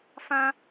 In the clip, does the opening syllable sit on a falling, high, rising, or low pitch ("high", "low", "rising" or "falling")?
high